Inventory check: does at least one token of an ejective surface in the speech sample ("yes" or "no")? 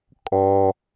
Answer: yes